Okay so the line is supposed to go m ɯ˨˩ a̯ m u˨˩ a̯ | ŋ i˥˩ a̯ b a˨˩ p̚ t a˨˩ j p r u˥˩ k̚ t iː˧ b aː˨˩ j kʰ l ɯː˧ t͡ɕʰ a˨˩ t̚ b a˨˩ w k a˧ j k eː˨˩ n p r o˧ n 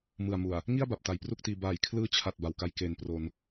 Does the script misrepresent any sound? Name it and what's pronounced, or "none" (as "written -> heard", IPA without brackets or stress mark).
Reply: none